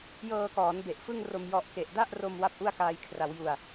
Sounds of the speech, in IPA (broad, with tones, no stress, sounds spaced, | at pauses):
j ɤː˧ k ɔː˩˦ n b e˨˩ ʔ f ɯ˥˩ ŋ r o˧ m j ɔ˦˥ ʔ k e˨˩ ʔ d a˥˩ ʔ r o˧ m w a˥˩ p̚ ʔ u˥˩ a̯ k aː˧ j kʰ r a˩˦ w j u˨˩ a̯